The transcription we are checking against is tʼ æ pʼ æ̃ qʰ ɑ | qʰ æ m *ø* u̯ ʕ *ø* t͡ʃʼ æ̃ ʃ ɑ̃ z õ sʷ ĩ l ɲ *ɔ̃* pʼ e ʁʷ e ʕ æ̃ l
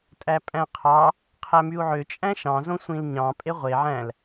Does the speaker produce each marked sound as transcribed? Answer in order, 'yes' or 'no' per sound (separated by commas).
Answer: no, yes, no